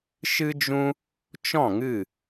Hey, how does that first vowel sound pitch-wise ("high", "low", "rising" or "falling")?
high